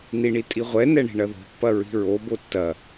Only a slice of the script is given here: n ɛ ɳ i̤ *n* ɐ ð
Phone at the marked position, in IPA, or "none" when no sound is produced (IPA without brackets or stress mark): ɳ